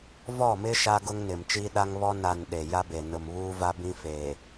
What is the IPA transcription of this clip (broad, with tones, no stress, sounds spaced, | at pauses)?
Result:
v ɔ˦˨ m ɪ˦ ʃ a˦ ɡ ʊ˦ ŋ n ɪ˨ m t͡ʃ iː˦ ɗ a˦ ŋ β ɔ˦ n a˨ n ɗ e˨ j a˦ b e˨ n ʊ˨ m β uː˦ v a˦ b ĩ˦ f eː˨